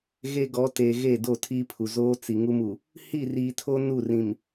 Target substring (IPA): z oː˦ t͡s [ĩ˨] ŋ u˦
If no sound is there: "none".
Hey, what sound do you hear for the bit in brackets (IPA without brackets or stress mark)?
i˨